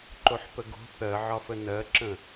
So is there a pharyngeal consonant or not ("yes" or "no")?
yes